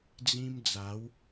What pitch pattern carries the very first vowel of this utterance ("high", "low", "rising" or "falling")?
high